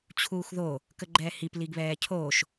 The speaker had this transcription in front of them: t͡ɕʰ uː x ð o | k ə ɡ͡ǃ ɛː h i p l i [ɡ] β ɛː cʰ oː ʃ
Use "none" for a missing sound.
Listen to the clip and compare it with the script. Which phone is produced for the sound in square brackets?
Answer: ɡ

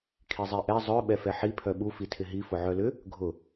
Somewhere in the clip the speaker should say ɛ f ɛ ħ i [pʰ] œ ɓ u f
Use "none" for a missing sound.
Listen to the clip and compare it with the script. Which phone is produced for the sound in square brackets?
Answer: pʰ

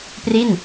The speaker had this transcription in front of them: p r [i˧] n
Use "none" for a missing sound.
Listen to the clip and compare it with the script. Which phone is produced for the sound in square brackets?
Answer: i˥˩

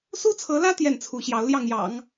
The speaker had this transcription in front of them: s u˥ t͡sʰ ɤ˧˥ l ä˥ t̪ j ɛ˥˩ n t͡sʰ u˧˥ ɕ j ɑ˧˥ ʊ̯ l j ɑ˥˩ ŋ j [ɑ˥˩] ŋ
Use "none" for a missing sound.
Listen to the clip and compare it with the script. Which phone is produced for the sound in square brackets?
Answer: ɑ̰˨˩˦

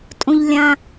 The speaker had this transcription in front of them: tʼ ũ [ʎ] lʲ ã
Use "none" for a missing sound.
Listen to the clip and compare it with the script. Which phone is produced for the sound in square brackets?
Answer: ʎ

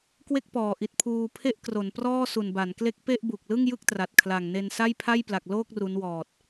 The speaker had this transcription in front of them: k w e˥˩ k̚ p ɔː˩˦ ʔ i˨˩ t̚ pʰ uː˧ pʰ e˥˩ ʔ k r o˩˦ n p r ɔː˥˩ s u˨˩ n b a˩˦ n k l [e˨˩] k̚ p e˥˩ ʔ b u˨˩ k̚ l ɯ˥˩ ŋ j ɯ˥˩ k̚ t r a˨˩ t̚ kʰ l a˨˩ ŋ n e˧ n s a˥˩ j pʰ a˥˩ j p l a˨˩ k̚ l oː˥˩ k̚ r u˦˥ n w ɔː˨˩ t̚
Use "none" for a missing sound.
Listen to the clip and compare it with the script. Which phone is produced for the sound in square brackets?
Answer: e˦˥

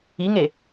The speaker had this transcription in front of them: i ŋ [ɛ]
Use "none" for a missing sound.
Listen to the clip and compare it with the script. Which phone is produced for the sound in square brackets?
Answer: e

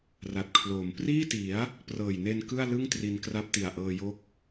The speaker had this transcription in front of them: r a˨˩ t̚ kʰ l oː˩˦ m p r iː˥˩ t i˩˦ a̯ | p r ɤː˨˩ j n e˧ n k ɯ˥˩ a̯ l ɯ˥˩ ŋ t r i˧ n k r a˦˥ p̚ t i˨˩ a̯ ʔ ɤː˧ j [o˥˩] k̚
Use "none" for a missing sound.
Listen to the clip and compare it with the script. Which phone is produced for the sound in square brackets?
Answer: o˦˥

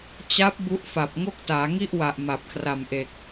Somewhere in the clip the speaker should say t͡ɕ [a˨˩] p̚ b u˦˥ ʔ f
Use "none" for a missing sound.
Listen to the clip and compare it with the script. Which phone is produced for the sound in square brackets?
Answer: a˦˥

